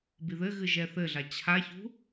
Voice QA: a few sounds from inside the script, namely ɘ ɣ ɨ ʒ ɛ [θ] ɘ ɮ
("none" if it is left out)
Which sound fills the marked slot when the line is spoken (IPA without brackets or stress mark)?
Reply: θ